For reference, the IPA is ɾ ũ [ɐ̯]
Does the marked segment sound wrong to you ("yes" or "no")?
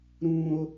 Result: yes